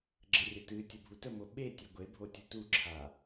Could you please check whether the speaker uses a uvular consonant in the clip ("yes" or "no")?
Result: no